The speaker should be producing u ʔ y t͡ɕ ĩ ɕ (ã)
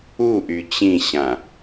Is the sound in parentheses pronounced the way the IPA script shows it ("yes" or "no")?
yes